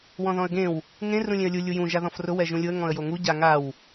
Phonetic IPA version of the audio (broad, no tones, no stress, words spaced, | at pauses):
wɔ̃ðɔ̃ə̯ɡẽw | ŋẽ rũlʲẽə̯lʲu lʲujũ ʒaðɔ̃frʊ wɛʒũlʲʊə̯ ŋɔ̃ə̯joŋu ɟaŋaw